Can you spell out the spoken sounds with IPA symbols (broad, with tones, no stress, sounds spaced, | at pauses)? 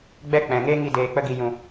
ɡ͡b ɛ˦ k͡p ɛ̃˨ ŋ eː˦ ŋ i˧ d eː˨ k͡p ə˧ ɡ i˨ j ũ˨